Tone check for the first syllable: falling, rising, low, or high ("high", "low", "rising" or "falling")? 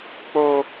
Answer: high